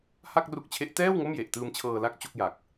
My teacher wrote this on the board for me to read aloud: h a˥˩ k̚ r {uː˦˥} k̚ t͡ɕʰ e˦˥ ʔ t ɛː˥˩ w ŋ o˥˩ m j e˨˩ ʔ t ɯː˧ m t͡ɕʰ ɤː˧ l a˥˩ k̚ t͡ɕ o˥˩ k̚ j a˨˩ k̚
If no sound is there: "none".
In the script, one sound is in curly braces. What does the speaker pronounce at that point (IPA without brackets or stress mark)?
u˦˥